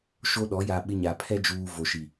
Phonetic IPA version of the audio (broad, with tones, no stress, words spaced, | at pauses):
ʃo˦ɗɔ˨˦ ja˨ ɓɪ˦ɲa˨ pʰɛ˦d͡ʒuː˨ vo˨ʃi˨